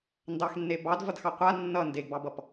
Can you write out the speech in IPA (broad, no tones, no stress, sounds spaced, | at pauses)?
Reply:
n d ɑ x nː e b ɑ d v ʌ d x ɑ qʷ a nː ʌ n d e ɡ b ɑ b ʌ p